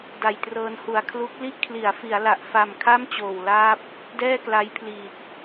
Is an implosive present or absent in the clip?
absent